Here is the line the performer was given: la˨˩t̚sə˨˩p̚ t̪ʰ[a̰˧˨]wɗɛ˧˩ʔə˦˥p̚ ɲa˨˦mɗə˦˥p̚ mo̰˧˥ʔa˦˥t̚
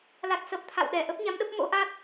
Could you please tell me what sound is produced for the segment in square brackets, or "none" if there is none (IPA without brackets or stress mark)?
a̰˧˨